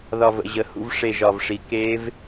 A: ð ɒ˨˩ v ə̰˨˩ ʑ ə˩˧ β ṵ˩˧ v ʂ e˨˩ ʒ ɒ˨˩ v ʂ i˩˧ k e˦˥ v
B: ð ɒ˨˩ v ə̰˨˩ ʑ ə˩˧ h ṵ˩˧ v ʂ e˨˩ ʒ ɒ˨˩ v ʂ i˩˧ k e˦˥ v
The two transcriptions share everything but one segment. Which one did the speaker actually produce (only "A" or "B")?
B